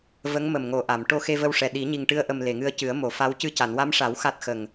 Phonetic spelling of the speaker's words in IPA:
v ə˧˥ ŋ m ə˨˩ m ŋ o˨˩ ʔ a˨˩˨ m ʈ o˧ x e˧ v ə˧ w ʂ ɛ˨˩ ɗ i˨˩˦ ɲ i˨˩ ŋ ʈ ɨ˧ ə̯ ʔ ə˨˩ m l e˨˩˨ ŋ ɨ˧ ə̯ c ɨ˨˩˦ ə̯ m o˨˩˨ f a˧˥ w c ɨ˧ c a˨˩˨ n w a˧˥ m ʂ a˨˩˦ w x a˦˥ t̚ x ə˨˩ ŋ

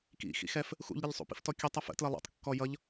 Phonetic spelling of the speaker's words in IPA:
k ḭ x ḭ x ɛ f | x ṵ ʎ ɾʲ ɛ ʎ sˤ ṵ p ḭ f t ɔ kʲ ʌ tˤ ʌ f ə̰ t l ʌ lˠ ṵ tˤ kː ɔ j ʌ ʎ

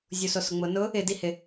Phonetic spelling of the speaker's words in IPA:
zʲ u s o s ʊ ŋ͡m ʊ n ʊ | ɪ d i h ɪ

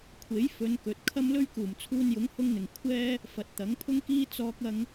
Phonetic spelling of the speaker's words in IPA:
kʷʰ e˨˥ j f ɵ˨˧ n k ɵ˨ t̚ kʰ ɐ˥ m l ɵ˥ ɥ k uː˨˩ m t͡sʰ uː˧ n j ʊ˨˥ ŋ h ʊ˧ ŋ n̪ ɪ˨˩ ŋ kʷʰ ɛː˥ | f ɐ˨˥ t̚ t̪ ɐ˨˥ ŋ pʰ ʊ˥ ŋ k iː˥ t͡s ɔː˧ k̚ ɐ˧ ŋ

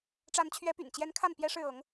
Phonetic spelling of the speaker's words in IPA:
ʈ͡ʂ a˧˥ n t͡ɕʰ ɥ ɛ˧˥ p y̰˨˩ n t͡ɕ j ɛ˧˥ n kʰ a˥˩ n p j ɛ˥ ʂ ɻ̩˥˩ ɤ˧˥ ŋ

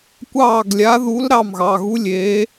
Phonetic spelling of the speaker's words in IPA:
kʷ ɑː˥˩ ɡ lʲ a˧˥ ð u˧˥ l ɾ ɑ˥˩ m ɣ ɑ˩˧˩ ɣ u˧˥ lʲ eː˧˥

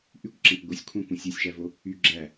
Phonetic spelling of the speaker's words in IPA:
ʔ y kʷ ǁ æ̃ kʷ ɡʷ ɯ sʲ kʷʰ ɑ̃ kʷ ũ sʲ o sʲ ʃ æ v o | y ɡ͡ǁ æ

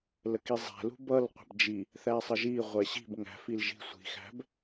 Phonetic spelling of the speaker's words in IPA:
l ə k i zˤ æ̤ l ṳ b ʌ l qʷ ə̤ b d͡ʒ i | θ æ sˤ ə ʒ i ʁʷ ɛ ɕ i̤ b ŋ æ̤ f i l ʒ i̤ sʷ i̤ x æ̤ b

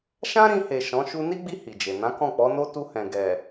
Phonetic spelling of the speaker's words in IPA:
ʃ ã˦ ɾ ĩ˧ h e˨ ʃ ɔ̃˨˦ ʃ u˧ n i˦ ɡ͡b i˧ h i˨ d͡ʒ e˨ n ã˨˦ k ɔ̃˦˨ k͡p ɔ˨˦ n o˦ t u˧ h ɛ̃˨ ɡ ɛ˨

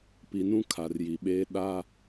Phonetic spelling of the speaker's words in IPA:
p i˨ n ũ˦ kʰ a˨ r j i˨ ɓ eː˦ ɗ a˦

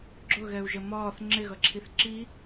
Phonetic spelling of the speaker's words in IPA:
ɡ͡ǁ ʊ ɣ ɛ u̯ ʒ ə m ɒː θ ŋ͡ǁ ɪ ɣ ʌ ǁʰ i θ ǁ i

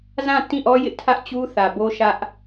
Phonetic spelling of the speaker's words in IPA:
z ã˦˨ t ĩ˦˨ ʔ ɔ˦ j ɪ˦ ʔ tʰ ä˦ ʔ t͡ɕ u˦ θ ä˨ b o˦ ʃ ä˦ ʔ

